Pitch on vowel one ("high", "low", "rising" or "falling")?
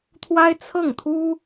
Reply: high